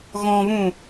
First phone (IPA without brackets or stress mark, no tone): ɣ